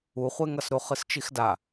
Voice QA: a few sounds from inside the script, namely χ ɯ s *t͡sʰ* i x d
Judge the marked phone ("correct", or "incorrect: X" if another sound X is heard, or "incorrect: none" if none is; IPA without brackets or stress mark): incorrect: t͡ʃ